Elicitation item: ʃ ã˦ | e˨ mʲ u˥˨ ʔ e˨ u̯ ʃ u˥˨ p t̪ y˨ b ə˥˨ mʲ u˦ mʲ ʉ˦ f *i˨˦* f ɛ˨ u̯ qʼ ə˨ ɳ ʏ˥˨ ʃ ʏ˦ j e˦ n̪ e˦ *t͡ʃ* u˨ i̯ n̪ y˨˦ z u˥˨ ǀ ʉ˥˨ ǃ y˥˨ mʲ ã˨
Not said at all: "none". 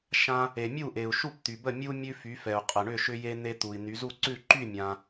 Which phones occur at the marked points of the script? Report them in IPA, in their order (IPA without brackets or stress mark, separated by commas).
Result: y˨˦, t̪